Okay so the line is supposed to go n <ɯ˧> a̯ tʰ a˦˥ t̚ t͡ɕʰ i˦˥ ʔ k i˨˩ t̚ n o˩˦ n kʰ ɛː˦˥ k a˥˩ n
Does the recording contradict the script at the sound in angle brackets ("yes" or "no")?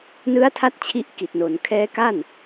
yes